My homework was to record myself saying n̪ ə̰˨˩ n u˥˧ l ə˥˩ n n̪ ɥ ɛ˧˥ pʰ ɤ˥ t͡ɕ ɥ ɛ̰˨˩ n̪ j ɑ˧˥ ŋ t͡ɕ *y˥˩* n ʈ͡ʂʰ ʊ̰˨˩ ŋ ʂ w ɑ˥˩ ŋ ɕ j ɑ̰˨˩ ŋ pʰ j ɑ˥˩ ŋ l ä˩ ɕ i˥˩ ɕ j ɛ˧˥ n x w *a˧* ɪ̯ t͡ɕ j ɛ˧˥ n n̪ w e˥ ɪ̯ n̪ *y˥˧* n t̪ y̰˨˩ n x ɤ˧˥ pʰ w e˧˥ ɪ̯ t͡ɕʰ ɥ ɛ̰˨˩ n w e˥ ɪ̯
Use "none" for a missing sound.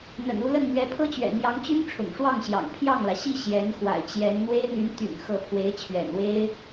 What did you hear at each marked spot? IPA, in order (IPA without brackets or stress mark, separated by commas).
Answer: y˥, a̰˨˩, y˧˥